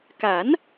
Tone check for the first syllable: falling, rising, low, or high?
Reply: rising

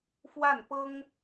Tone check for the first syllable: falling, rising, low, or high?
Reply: falling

